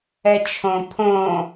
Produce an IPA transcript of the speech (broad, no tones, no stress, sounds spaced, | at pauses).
ɛ t͡ʃʰ õ pʰ õ